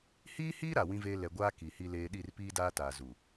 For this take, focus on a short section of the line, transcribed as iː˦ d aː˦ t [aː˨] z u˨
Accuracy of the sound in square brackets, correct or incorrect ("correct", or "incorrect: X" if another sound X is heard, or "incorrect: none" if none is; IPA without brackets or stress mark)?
correct